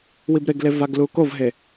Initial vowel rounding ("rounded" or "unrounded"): unrounded